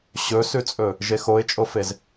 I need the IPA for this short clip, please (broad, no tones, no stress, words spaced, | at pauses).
ɕɵsʉt͡sʼɵ | ʒexoɪ̯t͡ʃʼofez